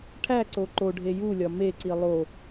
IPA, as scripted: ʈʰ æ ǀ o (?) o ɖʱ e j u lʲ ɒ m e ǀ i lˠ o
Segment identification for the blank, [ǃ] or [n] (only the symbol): ǃ